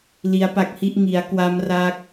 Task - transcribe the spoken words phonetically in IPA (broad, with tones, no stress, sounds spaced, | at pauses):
l i˦˥ a̯ p a˦˥ k̚ h i˥˩ ʔ ŋ i˩˦ a̯ k w a˦˥ m r a˦˥ k̚